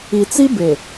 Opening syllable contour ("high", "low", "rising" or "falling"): low